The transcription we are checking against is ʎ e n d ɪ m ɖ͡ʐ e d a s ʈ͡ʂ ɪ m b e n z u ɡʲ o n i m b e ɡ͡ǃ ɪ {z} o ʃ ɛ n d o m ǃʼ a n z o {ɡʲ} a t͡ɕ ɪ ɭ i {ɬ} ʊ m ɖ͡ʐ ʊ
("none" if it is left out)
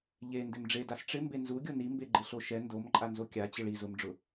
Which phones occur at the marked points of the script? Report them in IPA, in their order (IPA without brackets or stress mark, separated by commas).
ɬ, kʲ, z